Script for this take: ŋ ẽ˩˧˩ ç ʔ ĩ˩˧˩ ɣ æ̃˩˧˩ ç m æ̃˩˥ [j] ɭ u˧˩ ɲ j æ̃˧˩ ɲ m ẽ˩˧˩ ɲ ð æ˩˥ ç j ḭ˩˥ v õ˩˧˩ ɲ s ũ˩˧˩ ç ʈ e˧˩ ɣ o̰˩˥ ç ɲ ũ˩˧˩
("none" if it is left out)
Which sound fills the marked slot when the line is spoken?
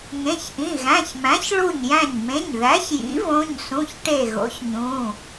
ç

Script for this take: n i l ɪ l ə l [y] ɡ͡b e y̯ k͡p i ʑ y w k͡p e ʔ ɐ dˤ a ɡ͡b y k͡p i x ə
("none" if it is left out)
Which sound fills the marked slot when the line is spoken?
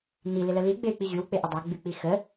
i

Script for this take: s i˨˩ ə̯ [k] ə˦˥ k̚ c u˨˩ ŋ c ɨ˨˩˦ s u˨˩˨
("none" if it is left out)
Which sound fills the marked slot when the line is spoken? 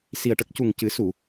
ʈ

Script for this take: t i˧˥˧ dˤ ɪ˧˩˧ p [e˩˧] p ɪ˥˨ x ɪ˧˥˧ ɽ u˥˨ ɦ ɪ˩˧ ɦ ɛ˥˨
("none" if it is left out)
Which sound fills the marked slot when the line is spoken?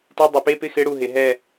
e˧˥˧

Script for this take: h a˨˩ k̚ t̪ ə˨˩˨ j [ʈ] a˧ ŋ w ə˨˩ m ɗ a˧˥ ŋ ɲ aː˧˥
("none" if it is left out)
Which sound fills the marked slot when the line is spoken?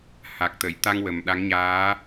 t̪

